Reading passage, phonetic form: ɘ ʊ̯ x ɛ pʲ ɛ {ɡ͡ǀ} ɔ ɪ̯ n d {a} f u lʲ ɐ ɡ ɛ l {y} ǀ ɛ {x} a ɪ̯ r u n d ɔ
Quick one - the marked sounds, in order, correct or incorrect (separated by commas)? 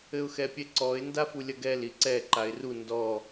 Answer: incorrect, correct, incorrect, incorrect